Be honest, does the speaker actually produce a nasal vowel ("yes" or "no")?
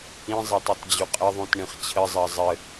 yes